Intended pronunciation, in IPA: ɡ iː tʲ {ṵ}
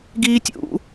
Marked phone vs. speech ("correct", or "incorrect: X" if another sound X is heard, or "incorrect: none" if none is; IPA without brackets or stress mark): correct